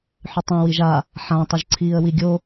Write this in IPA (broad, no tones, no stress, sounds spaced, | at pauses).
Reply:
ħ ʉ tˤ ĩ w i ʒ a | ħ ã tˤ ɵ ʒ ǀʰ iː ə̯ w i ɡʲ o